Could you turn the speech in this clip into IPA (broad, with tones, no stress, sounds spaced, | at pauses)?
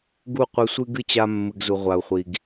ɡ u˦˨ qʷ ɨ˧ sʷ ɨ˦ ɡ ɨ˦ t͡ɕ a˧ mː ɨ˨ ɡ z u˨ ʁʷ a˨ u̯ χʷ i˨ ɡ